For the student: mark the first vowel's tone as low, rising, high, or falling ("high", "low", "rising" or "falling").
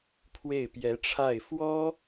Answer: falling